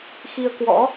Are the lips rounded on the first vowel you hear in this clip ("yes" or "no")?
no